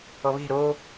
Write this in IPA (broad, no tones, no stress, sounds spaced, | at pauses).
ɔ β e̤ ɾ o